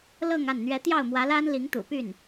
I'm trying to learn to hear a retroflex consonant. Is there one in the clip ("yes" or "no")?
no